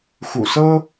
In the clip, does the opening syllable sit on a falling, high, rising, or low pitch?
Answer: low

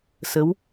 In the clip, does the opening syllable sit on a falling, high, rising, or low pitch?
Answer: rising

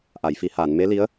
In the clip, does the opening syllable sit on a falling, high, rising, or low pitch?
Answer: low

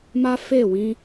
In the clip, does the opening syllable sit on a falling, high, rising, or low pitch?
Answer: high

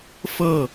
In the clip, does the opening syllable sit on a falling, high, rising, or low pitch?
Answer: falling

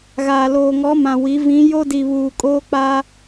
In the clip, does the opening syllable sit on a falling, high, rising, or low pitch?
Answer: low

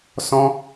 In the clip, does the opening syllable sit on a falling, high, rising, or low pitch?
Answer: high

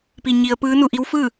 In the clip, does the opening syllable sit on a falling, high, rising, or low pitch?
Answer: low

